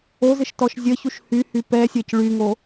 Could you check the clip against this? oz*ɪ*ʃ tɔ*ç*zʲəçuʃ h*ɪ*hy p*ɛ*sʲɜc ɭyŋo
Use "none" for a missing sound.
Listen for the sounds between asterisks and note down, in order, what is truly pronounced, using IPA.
ɪ, ʃ, y, ɛ

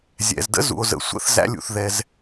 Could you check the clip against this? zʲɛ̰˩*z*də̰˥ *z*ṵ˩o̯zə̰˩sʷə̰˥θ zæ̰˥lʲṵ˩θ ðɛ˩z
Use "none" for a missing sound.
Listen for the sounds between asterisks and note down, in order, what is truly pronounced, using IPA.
z, z

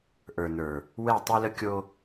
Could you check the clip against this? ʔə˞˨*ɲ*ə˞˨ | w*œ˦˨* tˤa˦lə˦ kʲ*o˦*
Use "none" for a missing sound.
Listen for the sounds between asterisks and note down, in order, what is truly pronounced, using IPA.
n, ɛ˦˨, o˦

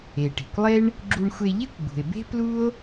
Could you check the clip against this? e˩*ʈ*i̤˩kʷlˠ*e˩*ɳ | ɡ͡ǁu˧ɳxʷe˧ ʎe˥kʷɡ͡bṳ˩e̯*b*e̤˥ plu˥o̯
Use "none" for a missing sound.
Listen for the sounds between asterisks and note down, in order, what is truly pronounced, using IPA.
ʈ, e˥, b

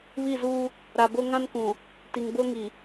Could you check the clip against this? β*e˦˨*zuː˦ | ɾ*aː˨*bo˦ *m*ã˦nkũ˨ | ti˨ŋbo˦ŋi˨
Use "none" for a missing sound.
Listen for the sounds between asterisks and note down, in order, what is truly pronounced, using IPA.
i˦˨, a˨, ŋ

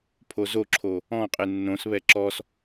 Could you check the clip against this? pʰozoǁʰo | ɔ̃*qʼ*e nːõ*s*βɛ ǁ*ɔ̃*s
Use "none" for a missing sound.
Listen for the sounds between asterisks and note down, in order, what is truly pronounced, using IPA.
qʼ, s, ɔ

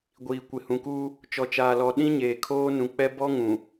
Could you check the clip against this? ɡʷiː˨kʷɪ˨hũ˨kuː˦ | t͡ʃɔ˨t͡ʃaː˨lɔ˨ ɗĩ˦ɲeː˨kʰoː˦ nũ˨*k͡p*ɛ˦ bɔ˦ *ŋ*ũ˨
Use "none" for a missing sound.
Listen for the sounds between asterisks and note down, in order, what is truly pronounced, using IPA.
k͡p, ŋ

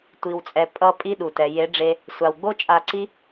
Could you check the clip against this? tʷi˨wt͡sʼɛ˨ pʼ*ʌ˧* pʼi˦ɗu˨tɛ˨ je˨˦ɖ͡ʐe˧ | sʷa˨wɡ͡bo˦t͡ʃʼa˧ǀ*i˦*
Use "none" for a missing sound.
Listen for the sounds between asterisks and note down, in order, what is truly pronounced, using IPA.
ʌ˧, i˦

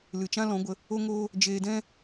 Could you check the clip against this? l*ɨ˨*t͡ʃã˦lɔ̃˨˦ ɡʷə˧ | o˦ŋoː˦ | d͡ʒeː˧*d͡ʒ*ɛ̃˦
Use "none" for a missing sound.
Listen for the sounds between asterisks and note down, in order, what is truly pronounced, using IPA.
ɨ˨, d

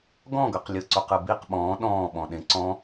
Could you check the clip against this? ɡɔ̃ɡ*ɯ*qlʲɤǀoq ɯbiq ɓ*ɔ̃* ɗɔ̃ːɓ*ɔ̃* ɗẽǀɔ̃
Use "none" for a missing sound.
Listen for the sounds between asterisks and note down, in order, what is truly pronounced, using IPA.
ɤ, ɔ̃ː, ɔ̃

